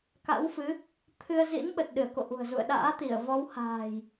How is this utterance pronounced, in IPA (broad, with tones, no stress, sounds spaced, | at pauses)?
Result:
k a̰˧˥ w f ɨ˨˦ | t̪ʰ ɨ˧ ə̯ z ḭ˧˥ n ɓ ə˨˩ t̚ ɗ ɨ˧˩ ə̯ k o̰˧˨ ʔ ṳ˨˩ ə̯ z ṵ˧˨ ə̯ ɗ a̰ː˧˥ t̪ i˧˩ ə̯ v ɔ˨˦ w h a̤ː˨˩ j